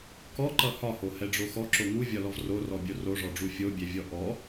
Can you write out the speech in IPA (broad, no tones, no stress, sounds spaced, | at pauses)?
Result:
k ɔ ǃ ʌ h ɒ h o h ɛ ɖ͡ʐ o x ɔ ǁ o ŋ u vʲ ɒ l ɔ v r o r ɔ bʲ o r o ʐ ɔ ɖ͡ʐ u fʲ o bʲ ɛ vʲ ɔ ʔ ɔ